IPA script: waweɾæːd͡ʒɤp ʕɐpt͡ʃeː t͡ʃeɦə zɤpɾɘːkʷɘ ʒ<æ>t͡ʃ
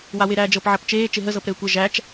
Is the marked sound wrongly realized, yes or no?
no